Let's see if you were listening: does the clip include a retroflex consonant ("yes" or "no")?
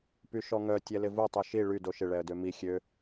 yes